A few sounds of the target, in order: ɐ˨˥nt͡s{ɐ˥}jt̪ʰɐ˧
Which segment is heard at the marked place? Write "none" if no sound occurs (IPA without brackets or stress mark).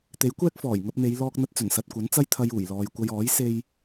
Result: ɐ˥